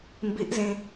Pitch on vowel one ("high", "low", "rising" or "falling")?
rising